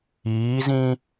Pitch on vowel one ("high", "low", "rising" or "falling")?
rising